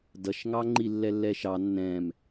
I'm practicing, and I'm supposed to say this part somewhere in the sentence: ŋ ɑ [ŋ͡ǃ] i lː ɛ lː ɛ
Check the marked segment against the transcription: correct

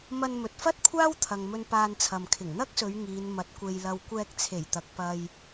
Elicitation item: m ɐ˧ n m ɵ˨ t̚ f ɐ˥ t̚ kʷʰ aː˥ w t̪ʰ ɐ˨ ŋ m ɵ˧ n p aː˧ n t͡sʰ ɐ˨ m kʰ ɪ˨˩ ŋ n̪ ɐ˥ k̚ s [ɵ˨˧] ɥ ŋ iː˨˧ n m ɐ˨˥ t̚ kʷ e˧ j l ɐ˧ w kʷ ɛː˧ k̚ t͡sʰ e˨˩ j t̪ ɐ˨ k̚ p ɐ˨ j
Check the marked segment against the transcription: correct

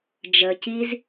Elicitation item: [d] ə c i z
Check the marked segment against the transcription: incorrect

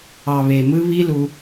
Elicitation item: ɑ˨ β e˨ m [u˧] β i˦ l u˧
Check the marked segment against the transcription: incorrect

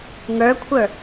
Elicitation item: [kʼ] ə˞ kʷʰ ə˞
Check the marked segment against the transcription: incorrect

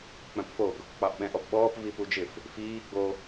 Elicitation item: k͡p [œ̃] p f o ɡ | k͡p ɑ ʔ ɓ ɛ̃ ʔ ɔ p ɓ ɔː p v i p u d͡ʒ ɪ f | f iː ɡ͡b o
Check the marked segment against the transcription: correct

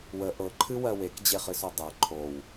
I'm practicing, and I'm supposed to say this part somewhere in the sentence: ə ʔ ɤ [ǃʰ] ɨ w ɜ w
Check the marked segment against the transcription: correct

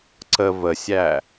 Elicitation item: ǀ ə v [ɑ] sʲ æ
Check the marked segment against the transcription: incorrect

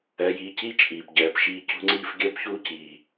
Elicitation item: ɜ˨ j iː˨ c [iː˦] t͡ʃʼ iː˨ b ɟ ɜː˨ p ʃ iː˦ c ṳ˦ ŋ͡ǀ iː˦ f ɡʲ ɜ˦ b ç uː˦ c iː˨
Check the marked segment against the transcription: incorrect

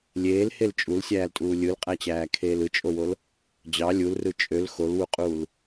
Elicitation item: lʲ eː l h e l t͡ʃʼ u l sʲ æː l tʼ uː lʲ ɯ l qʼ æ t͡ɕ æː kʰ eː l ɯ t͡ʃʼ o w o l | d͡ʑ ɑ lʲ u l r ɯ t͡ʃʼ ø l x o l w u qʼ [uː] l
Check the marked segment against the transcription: correct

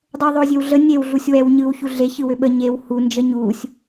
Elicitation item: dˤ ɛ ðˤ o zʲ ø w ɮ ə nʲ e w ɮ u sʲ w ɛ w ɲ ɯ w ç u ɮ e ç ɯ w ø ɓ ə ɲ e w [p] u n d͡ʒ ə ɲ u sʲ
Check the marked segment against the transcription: incorrect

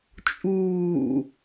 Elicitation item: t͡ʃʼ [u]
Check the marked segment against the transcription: incorrect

